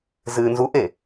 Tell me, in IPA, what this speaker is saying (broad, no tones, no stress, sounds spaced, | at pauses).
z ɨː n z u ʔ e